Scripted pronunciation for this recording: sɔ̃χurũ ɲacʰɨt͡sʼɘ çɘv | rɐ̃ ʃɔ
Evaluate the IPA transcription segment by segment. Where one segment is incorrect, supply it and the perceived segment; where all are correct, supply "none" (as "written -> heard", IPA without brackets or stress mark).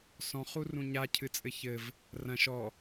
none